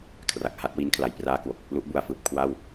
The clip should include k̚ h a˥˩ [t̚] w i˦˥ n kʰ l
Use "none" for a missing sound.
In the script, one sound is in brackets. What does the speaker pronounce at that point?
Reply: t̚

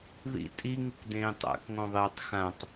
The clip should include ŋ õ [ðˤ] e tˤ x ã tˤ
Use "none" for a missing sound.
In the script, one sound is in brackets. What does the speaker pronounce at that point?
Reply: ðˤ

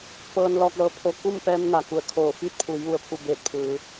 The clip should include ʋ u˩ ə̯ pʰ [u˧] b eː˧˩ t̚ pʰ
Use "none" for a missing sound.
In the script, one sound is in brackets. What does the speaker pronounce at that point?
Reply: u˧˩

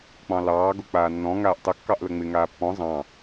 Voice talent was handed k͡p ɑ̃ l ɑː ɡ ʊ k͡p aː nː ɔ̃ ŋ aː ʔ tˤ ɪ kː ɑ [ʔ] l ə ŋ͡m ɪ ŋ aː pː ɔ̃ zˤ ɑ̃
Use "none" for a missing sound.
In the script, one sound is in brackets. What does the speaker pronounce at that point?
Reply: ʔ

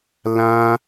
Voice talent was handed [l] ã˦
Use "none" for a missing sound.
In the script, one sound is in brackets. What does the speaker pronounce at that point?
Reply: l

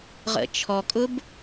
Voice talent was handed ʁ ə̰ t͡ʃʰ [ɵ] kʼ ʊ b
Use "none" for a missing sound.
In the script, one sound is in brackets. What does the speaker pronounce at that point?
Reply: ɔ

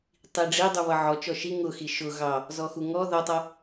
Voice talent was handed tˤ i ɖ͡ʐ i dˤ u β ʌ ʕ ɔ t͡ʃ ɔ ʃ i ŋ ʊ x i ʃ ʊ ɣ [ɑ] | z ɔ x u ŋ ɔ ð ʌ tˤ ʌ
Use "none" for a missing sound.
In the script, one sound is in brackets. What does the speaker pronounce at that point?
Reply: ɑ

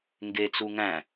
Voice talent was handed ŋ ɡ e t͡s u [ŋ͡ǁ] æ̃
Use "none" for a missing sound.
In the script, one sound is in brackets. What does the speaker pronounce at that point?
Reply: ŋ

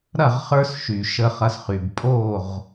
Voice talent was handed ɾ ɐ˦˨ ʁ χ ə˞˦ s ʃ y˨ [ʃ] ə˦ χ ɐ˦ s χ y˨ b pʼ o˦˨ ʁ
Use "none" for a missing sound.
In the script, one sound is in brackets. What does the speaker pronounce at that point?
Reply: ʃ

